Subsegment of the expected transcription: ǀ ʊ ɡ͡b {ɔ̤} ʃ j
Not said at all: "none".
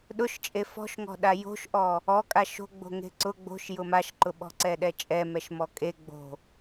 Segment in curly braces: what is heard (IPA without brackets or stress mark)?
o̤